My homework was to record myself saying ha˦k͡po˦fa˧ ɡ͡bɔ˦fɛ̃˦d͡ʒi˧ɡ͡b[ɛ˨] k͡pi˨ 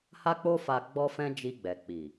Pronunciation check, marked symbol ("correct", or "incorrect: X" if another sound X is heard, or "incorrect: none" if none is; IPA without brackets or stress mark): correct